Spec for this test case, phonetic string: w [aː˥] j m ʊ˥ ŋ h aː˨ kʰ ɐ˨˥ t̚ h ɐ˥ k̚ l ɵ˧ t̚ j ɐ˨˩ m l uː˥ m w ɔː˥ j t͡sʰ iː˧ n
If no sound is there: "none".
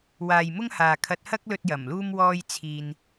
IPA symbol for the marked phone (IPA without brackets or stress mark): aː˨